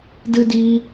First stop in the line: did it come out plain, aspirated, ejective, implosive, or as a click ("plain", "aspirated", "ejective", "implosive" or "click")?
plain